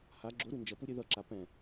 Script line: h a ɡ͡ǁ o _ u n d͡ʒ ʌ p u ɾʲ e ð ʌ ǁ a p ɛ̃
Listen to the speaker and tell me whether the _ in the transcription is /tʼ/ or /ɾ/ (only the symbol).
ɾ